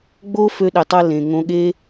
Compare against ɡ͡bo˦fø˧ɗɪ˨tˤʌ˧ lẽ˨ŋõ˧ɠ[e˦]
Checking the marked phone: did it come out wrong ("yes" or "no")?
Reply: no